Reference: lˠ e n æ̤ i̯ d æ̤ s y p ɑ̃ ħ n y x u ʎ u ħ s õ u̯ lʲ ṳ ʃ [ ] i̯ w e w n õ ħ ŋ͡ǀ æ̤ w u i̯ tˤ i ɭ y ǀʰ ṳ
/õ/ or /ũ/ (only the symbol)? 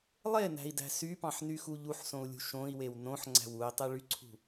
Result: õ